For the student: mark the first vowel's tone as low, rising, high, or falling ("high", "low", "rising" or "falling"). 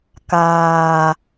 low